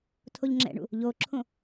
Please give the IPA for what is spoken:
tʰoʎŋ͡ǁɛ̰ɳṵ | ʎoǁʰõ

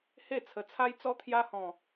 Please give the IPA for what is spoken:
he˥˧ t͡sʰə˨˩t͡sʰa˦jt͡sɔ˦ t̪ʰja˦hɔ̃˨˩

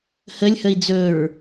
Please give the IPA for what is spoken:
həlʲhəi̯ d͡zɵɹ

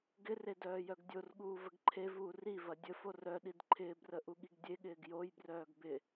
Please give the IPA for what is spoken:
ɡɪre dœːjœɡdʲorɠuː vəɡǃʰevuː rivɐ dʲəfo rœ ɗidǃʰɪːbrə ʔuɠiɡdʲeɠɪːɡ jojbrœːɡ bɪ

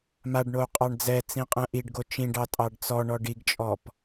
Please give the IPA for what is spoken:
maɖɳou̯ qʼɑɳd͡zɛt͡sĩ qʼɛ̃ʔiɖɡo t͡ʃĩɖɑ tʼɑɖt͡sɔɳɔ ɖiɡt͡ʃʼɔp

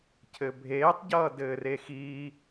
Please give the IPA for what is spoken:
cʰɘbʱeːtˤɟʌː dɘːrexiː

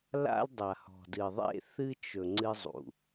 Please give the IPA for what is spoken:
la̰˦ldˤa˨hɔ̤˨ dɨ˨ðˤḛ˦˨ θɨ˦ t͡ʃɵ˨ ŋ͡ǀɨ˦zˤṵ˨

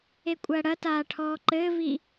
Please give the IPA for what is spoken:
ekʷʼɐːɽɐtaː ʈʰɔːǃɘːvi

